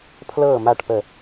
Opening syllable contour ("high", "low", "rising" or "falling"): falling